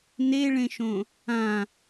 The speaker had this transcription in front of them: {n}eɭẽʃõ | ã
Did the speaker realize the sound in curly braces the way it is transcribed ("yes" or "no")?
yes